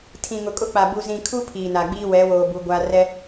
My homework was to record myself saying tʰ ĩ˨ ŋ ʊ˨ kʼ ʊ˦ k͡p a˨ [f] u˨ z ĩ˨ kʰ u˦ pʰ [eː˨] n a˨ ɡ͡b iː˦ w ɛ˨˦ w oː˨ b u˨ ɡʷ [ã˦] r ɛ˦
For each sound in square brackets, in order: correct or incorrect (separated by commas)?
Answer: incorrect, incorrect, incorrect